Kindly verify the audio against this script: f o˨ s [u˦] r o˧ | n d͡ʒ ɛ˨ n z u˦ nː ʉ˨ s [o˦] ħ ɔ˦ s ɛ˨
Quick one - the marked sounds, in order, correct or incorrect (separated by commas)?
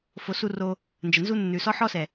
incorrect, incorrect